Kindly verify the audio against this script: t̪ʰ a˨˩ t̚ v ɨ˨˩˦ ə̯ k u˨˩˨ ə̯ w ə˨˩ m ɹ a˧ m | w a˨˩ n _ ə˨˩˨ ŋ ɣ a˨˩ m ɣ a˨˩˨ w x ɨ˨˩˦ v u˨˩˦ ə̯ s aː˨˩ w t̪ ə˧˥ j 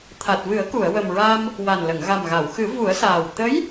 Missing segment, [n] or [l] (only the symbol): l